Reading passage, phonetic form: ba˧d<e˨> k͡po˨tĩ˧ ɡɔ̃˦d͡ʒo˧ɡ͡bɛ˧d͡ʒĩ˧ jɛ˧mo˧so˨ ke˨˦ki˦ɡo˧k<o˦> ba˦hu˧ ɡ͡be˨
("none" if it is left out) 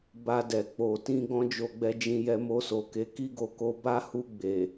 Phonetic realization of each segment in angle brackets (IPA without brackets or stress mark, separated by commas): ɛ˨, o˧